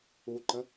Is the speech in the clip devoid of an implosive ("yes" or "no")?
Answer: yes